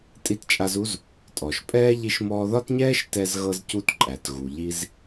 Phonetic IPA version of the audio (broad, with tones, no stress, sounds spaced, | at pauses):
tʼ i˦ t t͡ʃʼ a˦ z u˥ z | tʼ ɔ˩ ʃ pʼ ɛː˥ ʎ i˦ ʃ m ɔː˦ ð ɒ˥ t ɲ ɛː˥ ʃ t ɛ˦ z ɣ ɤ˦ z c u˦ t ǃʼ æ˩ t ɣ u˩ ʎ i˦ z